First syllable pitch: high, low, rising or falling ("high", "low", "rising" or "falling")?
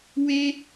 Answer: high